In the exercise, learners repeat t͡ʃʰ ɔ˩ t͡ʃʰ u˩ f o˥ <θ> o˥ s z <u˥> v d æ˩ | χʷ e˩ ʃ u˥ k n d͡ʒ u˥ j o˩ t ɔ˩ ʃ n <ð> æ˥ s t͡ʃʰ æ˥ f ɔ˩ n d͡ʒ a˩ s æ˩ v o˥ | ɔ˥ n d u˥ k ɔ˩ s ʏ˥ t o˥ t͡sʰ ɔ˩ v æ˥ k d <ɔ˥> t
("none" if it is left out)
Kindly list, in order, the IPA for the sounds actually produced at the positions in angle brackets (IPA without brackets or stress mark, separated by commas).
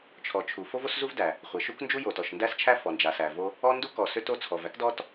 v, u˥, d, ɔ˥